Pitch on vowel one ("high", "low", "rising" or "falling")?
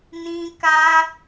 high